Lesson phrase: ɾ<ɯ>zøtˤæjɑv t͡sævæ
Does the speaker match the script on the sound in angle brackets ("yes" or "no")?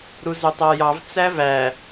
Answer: no